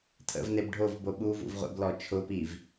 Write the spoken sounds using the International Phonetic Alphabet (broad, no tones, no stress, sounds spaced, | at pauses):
tʰ ə̰ v n e b ɖʱ o v b o ɓ u v ṵ v ʁʷ ɛ̰ b l ɔ t͡ʃʰ ʊ p i v